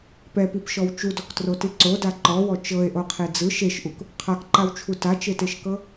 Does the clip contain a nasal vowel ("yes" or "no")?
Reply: no